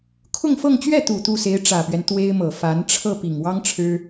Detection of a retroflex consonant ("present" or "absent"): present